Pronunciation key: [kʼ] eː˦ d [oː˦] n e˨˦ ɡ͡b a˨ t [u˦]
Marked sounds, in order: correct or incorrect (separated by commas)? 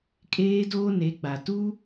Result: correct, correct, correct